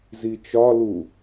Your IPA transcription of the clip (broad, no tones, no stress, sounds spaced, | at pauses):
z i t͡ʃ ɒ l u